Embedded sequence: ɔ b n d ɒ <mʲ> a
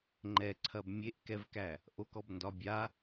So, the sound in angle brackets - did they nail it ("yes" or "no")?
no